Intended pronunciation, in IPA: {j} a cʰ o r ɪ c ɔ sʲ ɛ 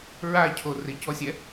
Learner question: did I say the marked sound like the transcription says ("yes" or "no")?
no